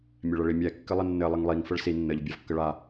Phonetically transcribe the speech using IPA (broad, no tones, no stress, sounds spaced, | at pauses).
mʲ ɛ ɭ ə ɭ i mʲ ɛ kː ɘ lˠ ə nː ɘ lˠ ə ŋ lˠ i ŋ f ə ɭ s i nː ə ʎ bʲ a v kː ə ɭ a